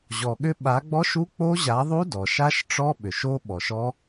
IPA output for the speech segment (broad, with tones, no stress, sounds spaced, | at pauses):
ʑ ɔ˩ ɠ ʏ˦˥ ɓ a˨˦ ɡ͡b ɔ˦˥ ʃ u˦˥ k͡p o˦˥ ʑ a˨˦ ðˤ u˦˥ d ɔ˩ ʃ a˦˥ ʃ ʈ͡ʂ ɔ˦˥ ɓ ʏ˩ ʃ o˦˥ ɓ ɔ˩ ʃ ɔ˦˥